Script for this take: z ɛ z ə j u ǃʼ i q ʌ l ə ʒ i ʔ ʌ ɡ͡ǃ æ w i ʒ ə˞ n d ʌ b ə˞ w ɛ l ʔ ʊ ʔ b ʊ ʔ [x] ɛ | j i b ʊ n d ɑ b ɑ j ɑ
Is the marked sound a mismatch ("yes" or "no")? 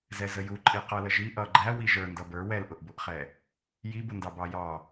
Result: yes